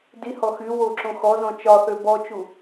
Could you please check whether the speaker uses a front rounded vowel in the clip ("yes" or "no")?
yes